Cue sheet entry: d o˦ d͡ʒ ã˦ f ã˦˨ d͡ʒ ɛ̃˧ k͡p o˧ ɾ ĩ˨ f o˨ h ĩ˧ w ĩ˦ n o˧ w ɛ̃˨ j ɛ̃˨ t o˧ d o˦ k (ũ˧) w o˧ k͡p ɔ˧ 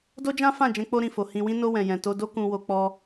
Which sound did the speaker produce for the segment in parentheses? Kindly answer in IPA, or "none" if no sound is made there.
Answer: ũ˧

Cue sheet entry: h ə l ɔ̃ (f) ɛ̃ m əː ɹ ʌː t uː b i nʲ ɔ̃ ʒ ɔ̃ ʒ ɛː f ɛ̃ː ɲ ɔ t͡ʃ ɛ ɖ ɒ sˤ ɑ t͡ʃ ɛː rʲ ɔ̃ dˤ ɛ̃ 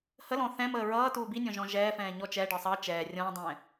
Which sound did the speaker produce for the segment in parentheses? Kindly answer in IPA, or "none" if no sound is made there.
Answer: θ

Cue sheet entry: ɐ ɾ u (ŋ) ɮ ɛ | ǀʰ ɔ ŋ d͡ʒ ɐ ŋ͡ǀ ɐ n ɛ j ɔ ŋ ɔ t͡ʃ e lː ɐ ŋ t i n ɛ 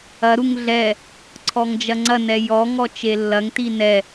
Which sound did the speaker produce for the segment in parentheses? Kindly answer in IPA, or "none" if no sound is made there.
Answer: ŋ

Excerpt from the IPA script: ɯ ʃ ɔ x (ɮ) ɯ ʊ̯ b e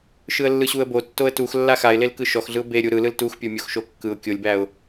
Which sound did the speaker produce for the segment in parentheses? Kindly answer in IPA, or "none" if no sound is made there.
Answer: ɮ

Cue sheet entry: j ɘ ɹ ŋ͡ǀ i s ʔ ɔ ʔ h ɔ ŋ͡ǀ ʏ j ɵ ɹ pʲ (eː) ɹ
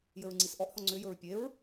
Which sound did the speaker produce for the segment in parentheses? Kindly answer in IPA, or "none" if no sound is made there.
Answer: e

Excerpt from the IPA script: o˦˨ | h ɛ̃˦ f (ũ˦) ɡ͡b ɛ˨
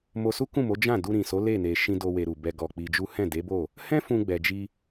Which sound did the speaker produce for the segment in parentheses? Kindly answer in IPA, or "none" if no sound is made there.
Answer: ũ˧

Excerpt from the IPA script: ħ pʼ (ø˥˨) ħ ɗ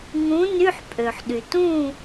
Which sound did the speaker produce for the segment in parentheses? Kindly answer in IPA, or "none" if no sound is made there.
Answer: ø˩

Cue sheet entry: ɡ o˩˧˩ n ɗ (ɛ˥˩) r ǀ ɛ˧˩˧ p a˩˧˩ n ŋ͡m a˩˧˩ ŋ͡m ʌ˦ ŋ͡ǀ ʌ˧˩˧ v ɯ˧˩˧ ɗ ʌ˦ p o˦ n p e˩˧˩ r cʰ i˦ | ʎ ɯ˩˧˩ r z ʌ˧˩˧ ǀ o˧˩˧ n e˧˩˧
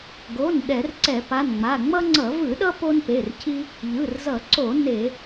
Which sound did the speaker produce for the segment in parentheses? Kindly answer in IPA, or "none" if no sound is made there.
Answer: ɛ˧˩˧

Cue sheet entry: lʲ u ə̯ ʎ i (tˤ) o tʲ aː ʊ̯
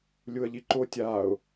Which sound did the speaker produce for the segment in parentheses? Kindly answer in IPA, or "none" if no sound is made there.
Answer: ǃ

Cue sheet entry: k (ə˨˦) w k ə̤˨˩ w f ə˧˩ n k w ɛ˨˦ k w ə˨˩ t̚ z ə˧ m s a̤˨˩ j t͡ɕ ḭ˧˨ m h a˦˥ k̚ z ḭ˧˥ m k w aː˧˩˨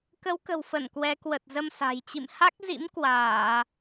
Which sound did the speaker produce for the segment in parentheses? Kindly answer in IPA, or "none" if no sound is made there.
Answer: ə˨˦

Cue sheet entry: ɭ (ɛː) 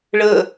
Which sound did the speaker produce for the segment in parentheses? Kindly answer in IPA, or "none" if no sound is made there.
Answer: əː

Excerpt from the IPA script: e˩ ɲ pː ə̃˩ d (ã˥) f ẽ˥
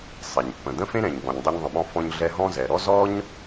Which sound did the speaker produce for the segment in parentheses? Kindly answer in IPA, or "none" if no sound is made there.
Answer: ə̃˥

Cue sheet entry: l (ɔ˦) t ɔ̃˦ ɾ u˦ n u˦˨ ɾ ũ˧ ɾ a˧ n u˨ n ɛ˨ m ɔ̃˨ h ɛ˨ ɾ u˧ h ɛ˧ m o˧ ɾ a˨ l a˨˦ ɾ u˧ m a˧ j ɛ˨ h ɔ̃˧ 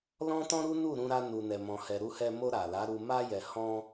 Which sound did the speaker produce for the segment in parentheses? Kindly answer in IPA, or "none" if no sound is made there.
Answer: ɔ̃˦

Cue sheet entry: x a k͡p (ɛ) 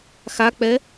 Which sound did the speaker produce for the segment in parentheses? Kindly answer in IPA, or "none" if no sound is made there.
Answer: ɛ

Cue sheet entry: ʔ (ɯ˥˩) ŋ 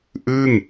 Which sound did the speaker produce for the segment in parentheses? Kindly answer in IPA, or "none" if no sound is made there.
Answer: ɯ˥˩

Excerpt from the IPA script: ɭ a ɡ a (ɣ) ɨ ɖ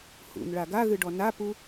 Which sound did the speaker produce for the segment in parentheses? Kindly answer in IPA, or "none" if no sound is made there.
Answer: ɣ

